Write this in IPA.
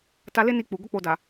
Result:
t a˧ l e˦ n i˧ k͡p u˨ ɡ o˧ k͡p o˨ d a˨

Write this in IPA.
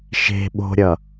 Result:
ʃ e̤ ɓ o̤ ɾʲ ʌ

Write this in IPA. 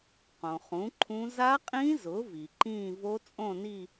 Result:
q õ˩ χ ũ˩˥ ǃʰ ũ˦˥ z a˦˥ qʼ ĩ˦˥ z ʊ˩˥ v i˩ ǃ ĩː˥˧ v o˦˥ t͡sʼ õ˥˧ n i˥˧

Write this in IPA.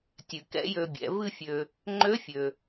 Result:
tʲ ɨ˩ k ɛ̰˧˥ j ø˧ bʲ ɛ̰˩˧ v ɨ˧ fʲ ø˩ | ŋ͡ǃ ø˧˥ fʲ ø˩

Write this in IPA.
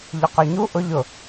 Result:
ʎ ʊ q ø ɲ u ʔ ʊ ʎ ʊ

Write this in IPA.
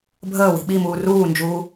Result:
bʱ əː w i̤ ɓ i m uː r uː n d͡ʒ uː

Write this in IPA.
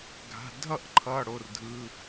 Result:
ɡʱ a̤˩˧˩ dʱ ʌ˥˩ ʔ ǃʰ ʌ˩˧˩ ɽ o˩˧˩ r dʱ ɯ˩˧˩

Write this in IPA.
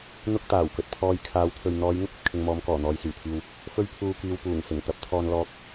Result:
n̪ ʊ˥ k̚ t̪ aː˨˩ w k ɵ˨ t̚ pʰ ɔː˧ j kʰ aː˨˧ w t̪ʰ ɵ˨ ɥ n̪ ɔː˨˧ j ŋ ʊ˥ k̚ ɐ˨ t̚ kʰ ɪ˧ ŋ m ɔː˨˧ m k ɔː˨˩ n̪ ɔː˨ j s yː˨˩ t̪ʰ iː˨ w | f ɵ˥ ɥ pʰ uː˧ k iː˨ w p uː˨˩ ŋ s ɪ˨˩ ŋ t̪ ɐ˨˥ p̚ t̪ʰ ɔː˧ n l ɔː˨ k̚

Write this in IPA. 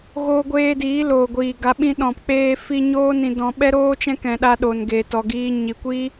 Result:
ɣ oː˧ ɡʷ eː˧ d iː˨˦ l oː˨ ɡʷ iː˨ ɡ a˨˦ ɓ ĩ˧ ɗ ɔ̃˨ p k͡p eː˧ f i˧ ɲ oː˦ n ĩ˧ d ɔ̃˧ ɓ ɛ˦ ɾ oː˦ t͡ʃ ɛ̃˦ k ɛ̃˨ ɗ a˧ ɗ o˨ n ɡ eː˨ t ɔ˨ ɡ iː˧ ɲ i˨ kʷ iː˦

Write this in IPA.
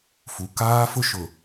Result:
f u˨ k aː˦ f ʊ˦ ʃ ʊ˨

